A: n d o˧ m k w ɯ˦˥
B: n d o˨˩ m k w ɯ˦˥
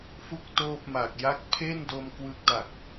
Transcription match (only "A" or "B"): A